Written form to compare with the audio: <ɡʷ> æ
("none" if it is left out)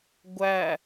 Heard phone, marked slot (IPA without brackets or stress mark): ɡʷ